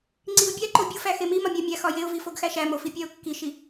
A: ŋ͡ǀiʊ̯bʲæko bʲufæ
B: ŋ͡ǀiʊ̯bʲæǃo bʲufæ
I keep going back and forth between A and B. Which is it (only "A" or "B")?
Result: B